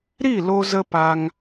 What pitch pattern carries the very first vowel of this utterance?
falling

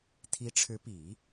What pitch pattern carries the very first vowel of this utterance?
rising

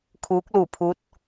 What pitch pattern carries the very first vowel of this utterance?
rising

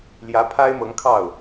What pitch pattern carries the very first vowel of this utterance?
rising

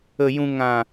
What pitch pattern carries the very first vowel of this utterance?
low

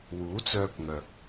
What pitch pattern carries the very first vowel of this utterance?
rising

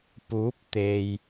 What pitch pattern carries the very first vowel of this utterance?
rising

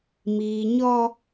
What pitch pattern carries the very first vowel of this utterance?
low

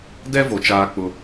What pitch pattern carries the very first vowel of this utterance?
high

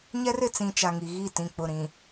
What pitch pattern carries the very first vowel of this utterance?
high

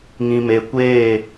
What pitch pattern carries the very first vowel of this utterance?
low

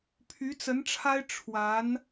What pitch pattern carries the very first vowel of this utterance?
rising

